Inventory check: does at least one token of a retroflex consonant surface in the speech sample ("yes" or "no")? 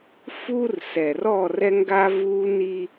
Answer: no